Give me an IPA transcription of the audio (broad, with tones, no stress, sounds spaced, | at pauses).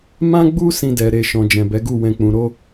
m ã˦ ɡ͡b u˦ s ĩ˧ d ɛ˨ ɾ e˨ ʃ ɔ̃˨ d͡ʒ ɛ̃˨ b ɛ˨˦ ɡ u˦˨ w ɛ̃˧ k͡p ũ˨ ɾ o˧